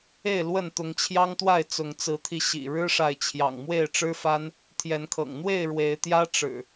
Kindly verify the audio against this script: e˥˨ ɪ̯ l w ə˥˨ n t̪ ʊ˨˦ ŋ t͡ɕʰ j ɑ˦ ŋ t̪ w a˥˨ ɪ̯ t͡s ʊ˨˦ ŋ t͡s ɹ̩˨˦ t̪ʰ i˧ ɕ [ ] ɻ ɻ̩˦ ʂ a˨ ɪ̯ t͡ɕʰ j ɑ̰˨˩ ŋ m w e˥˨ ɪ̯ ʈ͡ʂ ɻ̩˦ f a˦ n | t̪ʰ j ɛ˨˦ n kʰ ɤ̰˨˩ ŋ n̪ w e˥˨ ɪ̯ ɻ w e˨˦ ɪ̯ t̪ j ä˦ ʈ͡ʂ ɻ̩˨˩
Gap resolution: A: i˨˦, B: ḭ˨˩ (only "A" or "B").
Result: B